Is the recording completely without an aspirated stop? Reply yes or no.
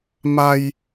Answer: yes